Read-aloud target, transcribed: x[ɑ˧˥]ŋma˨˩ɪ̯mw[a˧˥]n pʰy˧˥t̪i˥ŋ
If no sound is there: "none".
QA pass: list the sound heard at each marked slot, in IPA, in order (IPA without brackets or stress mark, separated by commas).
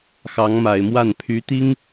ɑ˧˥, a˥˩